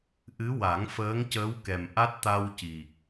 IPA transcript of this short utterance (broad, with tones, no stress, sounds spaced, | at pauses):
ʔ ɨ˧˥ w a˨˩˦ ŋ f əː˧˥ ŋ c əː˧˥ w k ɛ˨˩ m ʔ a˦˥ t̚ t̪ a˧ w c i˨˩ k̚